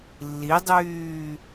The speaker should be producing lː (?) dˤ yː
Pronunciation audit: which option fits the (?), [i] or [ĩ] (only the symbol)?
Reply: i